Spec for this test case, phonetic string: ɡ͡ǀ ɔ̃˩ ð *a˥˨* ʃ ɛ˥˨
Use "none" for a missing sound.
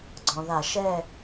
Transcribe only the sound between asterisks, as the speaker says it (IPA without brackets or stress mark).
a˧˩˧